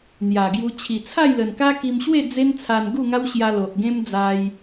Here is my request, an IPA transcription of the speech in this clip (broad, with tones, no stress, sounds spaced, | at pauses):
n̪ j a˨˩ ɡ j u˧ t͡ɕʰ i˨˩ t͡sʰ a˥˧ j l ə˨˩ n k a˦ k i˧ m ɕ w e˥˧ d͡z e˦ n t͡sʰ a˧ n ɡ u˥˧ ŋ a˦ w ɕ j a˧ l o˨ ʔ ɡ ẽ˦ m d͡z a˧ j